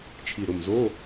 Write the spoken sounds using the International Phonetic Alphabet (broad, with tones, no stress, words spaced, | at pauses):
t͡ʃʰi˨˩ɾʊ˨˩mzo˧˥˧